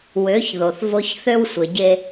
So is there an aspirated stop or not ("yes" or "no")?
no